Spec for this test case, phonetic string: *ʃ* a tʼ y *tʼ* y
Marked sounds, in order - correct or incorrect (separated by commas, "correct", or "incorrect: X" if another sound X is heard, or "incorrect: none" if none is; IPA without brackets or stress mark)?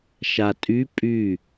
correct, incorrect: pʼ